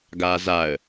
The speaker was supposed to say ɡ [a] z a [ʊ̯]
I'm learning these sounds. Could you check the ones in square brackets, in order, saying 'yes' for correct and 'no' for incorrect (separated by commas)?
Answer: no, no